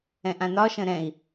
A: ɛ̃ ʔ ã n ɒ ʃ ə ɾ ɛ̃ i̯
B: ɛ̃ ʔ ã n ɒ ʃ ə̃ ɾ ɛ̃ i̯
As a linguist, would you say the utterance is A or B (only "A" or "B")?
B